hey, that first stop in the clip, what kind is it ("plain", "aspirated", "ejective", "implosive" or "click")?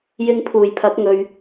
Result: aspirated